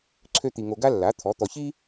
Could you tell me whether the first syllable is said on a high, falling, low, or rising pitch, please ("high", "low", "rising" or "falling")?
high